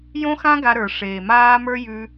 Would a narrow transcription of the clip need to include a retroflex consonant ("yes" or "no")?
yes